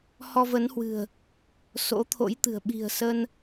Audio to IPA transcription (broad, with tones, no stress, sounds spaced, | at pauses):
h ɔ˧ v ə˨˦ n h w ɨ̤˨˩ ə̯ | s o̰˧˥ t̪ʰ o̰˧˥ j t̪ ɨ̤˨˩ ə̯ ɓ i̤˨˩ ə̯ s ə˧ n